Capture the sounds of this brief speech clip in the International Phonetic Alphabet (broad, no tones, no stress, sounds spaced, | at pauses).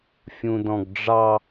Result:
fʲ ũ d ɔ̃ ɡ ɖ͡ʐ ɑ